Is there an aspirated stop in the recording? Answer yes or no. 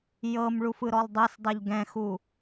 no